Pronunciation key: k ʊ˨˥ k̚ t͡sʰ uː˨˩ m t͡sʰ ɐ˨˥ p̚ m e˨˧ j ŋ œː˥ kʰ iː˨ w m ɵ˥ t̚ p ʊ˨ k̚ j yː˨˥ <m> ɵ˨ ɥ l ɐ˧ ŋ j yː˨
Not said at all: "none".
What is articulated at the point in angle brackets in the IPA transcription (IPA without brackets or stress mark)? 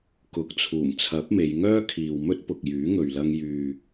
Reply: ŋ